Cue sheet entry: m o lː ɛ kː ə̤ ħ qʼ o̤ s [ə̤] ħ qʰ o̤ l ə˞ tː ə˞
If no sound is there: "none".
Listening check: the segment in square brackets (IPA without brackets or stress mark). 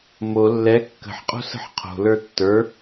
ə̤